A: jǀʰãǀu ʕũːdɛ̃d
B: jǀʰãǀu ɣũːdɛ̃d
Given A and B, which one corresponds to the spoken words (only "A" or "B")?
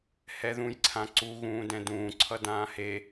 B